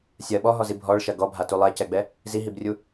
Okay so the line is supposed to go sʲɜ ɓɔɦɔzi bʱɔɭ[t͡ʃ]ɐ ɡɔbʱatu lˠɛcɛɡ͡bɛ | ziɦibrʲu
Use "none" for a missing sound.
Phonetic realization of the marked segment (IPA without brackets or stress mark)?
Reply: ʃ